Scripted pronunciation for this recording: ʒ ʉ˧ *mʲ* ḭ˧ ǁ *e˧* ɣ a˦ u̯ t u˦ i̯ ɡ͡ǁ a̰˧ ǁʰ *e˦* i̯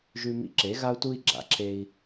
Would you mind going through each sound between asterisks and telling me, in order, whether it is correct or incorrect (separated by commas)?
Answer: incorrect, incorrect, correct